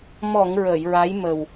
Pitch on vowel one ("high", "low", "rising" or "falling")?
low